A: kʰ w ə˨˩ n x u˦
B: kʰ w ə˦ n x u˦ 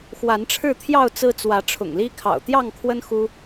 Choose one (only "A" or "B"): B